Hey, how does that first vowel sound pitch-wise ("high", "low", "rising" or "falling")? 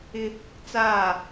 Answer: high